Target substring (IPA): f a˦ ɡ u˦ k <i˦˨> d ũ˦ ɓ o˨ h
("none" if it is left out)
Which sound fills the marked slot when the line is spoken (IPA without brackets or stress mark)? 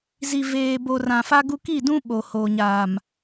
i˦˨